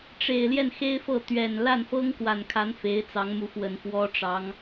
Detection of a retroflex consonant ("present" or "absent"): present